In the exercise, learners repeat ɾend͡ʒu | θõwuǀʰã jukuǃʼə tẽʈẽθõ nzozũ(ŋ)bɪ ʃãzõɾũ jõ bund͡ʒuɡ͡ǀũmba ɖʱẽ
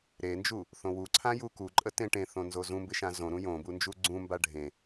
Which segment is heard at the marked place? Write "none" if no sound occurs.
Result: m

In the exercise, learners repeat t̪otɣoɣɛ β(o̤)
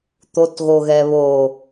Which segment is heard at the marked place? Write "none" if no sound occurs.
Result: o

